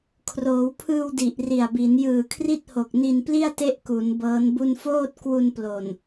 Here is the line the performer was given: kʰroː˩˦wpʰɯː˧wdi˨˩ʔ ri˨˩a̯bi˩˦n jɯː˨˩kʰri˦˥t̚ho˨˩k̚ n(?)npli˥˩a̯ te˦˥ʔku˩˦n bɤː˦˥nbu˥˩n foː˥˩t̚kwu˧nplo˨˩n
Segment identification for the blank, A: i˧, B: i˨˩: A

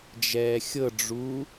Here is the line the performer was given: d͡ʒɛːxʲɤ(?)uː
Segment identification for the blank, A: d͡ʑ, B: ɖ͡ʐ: B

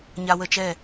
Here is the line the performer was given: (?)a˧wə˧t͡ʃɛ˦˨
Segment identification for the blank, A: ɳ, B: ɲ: B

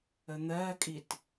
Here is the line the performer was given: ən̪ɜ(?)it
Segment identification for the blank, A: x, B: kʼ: B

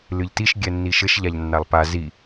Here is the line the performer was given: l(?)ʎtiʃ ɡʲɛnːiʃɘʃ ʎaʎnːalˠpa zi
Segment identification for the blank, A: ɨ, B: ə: A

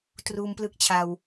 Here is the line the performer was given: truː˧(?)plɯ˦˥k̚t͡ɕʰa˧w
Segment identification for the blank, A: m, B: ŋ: A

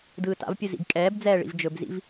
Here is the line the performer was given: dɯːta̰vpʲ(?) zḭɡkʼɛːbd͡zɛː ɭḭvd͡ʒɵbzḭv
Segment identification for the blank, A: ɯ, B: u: A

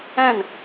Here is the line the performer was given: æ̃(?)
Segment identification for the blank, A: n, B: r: A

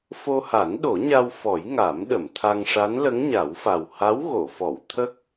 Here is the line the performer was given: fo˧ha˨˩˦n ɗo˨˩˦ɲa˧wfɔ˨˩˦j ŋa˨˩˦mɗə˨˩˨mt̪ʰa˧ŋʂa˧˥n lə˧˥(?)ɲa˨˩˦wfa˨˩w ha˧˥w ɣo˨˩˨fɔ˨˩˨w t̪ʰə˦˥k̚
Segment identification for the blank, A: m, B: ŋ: B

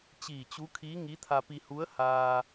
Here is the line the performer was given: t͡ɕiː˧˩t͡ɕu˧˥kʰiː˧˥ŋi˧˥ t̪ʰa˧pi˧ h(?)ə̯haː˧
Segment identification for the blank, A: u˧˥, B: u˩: A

